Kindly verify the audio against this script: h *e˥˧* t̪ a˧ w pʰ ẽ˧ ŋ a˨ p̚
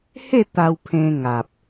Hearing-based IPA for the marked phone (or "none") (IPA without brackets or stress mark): e˥˧